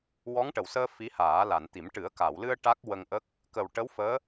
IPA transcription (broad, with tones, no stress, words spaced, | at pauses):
wɔ˧˥ŋʈə˨˩˨wsəː˧ fi˧˥haː˨˩˦la˨˩˨nt̪i˨˩˦m ʈɨ˨˩˦ə̯ka˨˩˨wlɨ˧ə̯ ʈa˦˥k̚wə˧ŋʔə˦˥k̚ | kə˨˩wʈə˧˥wfəː˧˥